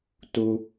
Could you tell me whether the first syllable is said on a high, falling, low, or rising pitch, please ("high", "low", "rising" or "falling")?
high